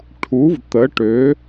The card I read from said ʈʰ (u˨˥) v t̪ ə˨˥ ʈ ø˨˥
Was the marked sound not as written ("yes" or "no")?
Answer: no